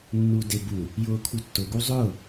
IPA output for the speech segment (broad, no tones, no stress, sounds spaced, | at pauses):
nː uː d e b u | j ʊː kʰ u tː ʊ ɡ u zˤ ʊː